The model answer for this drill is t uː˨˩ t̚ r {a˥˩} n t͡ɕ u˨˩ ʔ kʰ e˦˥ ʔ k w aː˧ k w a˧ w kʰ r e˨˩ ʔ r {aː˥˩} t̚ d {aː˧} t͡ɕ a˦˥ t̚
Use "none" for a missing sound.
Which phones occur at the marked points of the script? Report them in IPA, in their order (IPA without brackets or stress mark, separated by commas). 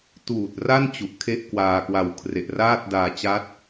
a˥˩, aː˥˩, aː˧